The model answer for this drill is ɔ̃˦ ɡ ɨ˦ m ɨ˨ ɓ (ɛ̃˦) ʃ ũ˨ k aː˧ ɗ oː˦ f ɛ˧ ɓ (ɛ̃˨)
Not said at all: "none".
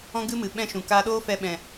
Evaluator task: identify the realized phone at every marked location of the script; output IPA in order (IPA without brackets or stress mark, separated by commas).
ɛ̃˦, ɛ̃˨